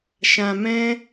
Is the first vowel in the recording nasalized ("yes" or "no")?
yes